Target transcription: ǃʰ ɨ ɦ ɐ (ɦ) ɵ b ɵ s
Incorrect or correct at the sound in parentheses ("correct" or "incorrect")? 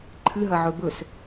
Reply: incorrect